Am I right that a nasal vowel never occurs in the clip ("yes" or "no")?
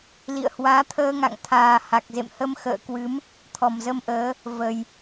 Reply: yes